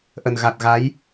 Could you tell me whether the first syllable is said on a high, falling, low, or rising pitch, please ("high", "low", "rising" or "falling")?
low